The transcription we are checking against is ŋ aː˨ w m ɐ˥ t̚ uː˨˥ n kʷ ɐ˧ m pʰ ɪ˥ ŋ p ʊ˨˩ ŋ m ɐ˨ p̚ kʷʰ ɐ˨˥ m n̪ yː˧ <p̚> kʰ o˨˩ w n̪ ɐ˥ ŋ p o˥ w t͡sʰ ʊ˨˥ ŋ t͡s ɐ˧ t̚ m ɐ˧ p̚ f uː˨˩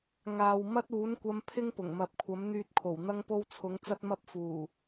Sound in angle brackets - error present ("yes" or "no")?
yes